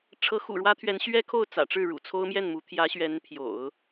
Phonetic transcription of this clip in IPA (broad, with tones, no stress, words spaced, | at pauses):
ʈ͡ʂʰɤ˧˥ xṵ˨˩ɻwä˥t̪ʰɥɛ˧˥n ɕɥɛ˥kʰo˥˩ʊ̯t͡sä̰˨˩ʈ͡ʂɻ̩˥˩ ɻṵ˨˩t͡sʰo˥ʊ̯mjɛ˥˩nmu˧˥ t̪ʰjä˧˥ɕɥɛ˧˥n pʰjo̰˨˩˦ʊ̯